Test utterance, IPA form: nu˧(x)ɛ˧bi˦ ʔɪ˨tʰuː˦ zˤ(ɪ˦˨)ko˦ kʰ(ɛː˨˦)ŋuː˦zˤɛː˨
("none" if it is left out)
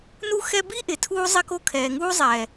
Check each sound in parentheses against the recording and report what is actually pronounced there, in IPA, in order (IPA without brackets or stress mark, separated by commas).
x, ɪ˦, ɛː˨